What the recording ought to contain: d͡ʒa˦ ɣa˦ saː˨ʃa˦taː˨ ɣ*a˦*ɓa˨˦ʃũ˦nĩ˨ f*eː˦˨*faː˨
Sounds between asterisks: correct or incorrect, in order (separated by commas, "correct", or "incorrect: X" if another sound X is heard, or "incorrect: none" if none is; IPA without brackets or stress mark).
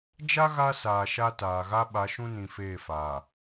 correct, correct